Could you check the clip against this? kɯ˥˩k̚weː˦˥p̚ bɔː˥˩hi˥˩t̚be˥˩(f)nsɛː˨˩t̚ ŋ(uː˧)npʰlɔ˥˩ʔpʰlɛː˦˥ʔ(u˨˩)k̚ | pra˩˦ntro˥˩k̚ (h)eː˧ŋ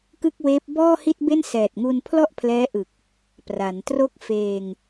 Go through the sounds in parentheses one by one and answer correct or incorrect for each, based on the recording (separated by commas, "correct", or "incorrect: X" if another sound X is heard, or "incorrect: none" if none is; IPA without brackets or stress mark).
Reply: incorrect: none, correct, incorrect: ɯ˨˩, incorrect: f